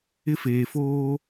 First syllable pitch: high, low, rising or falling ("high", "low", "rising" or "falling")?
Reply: high